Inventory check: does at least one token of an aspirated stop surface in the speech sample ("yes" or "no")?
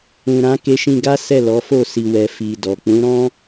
no